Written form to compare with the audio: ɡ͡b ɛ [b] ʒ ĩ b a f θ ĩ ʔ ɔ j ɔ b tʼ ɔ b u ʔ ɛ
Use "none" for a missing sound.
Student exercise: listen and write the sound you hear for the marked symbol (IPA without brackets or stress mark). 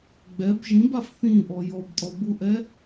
b